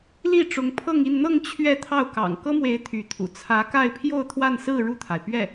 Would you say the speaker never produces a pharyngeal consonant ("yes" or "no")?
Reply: yes